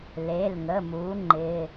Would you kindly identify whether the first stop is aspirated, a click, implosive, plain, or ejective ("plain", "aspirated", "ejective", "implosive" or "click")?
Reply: click